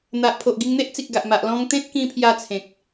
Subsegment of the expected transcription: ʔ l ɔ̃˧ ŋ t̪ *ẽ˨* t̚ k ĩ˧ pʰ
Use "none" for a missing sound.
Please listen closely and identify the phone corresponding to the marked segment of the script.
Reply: ẽ˦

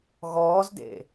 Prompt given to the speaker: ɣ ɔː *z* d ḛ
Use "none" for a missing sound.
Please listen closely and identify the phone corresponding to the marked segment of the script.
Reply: z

